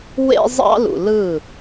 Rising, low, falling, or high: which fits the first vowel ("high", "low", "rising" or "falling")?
high